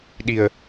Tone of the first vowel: low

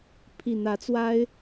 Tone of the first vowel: low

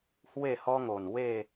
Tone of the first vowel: falling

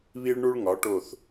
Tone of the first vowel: high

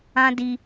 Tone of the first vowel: high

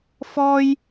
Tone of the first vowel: high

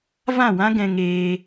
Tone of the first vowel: falling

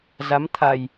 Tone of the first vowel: rising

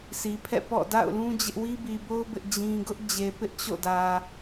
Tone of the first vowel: low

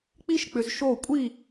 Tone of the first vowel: high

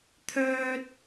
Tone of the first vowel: high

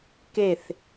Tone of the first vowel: falling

